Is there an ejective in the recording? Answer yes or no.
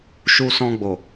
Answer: no